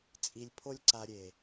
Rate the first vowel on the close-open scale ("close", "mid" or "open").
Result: close